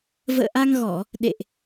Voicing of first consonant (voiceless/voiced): voiced